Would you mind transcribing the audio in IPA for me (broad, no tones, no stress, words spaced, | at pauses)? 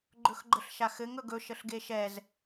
ɡ͡ǃɵxɡ͡ǃəɬʃaxɘŋ ɵɡɵ ʃəɬɡeʃɛz